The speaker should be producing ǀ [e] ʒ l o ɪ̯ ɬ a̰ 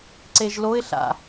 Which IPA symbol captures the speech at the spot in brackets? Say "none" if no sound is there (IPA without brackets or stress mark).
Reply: e